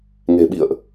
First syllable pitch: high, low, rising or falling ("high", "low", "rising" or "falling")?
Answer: low